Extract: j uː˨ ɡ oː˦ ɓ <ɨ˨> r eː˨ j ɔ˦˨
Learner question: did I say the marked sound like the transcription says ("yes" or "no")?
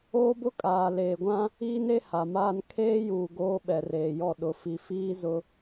no